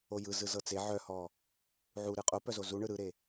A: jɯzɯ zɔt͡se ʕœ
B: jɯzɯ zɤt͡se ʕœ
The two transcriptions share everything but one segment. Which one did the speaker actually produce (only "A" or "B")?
B